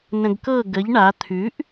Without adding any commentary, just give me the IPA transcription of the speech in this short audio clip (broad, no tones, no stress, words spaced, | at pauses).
nə̃ɡkɤ ɡəʎ ɳa t̪ʰʉʔ